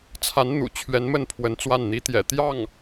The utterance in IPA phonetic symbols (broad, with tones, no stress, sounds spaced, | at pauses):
t͡sʰ a˧˥ n n̪ ṵ˨˩ t͡ɕʰ ɥ ɛ˧˥ n m ə˥˩ n pʰ w ə˧˥ n t͡s w a˥˩ n n̪ i˧˥ t̪ j ɛ̰˨˩ t̪ j ɑ˥˩ ŋ